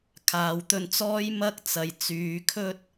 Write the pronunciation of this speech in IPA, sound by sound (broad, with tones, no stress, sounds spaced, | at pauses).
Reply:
kʰ aː˨ w t̪ ɵ˧ n t͡s ɔː˥ j m ɐ˥ k̚ t͡s ɐ˨ j t͡s yː˨˧ kʰ ɵ˥ t̚